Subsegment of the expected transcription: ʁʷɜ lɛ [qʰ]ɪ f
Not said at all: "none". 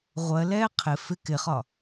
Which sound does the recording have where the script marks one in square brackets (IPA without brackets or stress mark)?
qʰ